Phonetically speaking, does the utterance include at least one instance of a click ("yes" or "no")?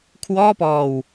no